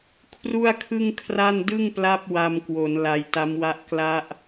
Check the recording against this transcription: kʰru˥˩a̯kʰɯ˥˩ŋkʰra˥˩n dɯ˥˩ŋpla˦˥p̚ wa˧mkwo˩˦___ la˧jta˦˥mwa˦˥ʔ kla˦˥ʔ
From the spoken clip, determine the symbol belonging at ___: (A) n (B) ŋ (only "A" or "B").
A